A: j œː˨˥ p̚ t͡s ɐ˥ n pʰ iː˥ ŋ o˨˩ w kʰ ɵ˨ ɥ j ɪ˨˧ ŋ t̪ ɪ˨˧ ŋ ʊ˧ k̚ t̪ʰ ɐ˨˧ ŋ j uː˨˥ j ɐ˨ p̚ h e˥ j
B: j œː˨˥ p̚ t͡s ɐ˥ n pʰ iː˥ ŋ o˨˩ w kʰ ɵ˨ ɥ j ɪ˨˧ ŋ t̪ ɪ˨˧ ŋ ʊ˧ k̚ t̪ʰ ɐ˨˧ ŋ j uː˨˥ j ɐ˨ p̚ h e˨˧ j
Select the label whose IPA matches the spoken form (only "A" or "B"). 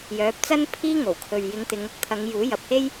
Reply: A